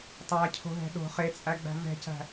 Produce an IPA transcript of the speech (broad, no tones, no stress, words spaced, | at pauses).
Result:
tˤæcʰo̤ɦɛ̤ ɗo̤ χet͡sʼæɡ͡bæ̤ vɛ̤cæ̤